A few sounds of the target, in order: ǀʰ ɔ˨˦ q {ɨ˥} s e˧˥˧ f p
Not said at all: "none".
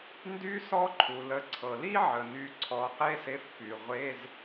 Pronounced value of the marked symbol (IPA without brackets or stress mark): e˥